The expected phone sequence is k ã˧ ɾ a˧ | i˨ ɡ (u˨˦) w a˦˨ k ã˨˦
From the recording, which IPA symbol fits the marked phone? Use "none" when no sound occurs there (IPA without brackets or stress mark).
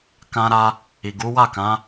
u˨˦